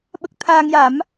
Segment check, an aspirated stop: present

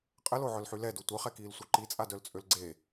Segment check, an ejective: present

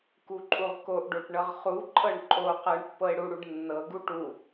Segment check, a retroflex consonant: present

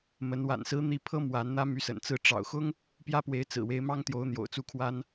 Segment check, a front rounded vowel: present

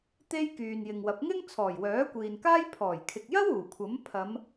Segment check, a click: absent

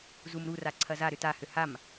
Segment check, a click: present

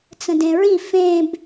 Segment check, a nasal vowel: present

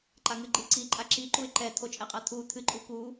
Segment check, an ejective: present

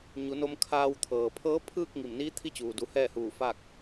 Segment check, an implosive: absent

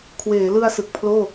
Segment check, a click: absent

